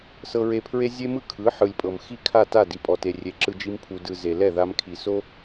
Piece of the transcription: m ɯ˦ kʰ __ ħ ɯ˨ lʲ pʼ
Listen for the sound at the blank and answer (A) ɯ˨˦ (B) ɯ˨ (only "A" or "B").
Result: A